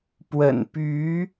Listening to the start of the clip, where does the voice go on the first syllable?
low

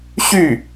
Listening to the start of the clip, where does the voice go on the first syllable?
falling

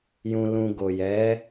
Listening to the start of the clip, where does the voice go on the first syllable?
low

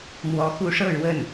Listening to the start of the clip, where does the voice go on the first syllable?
rising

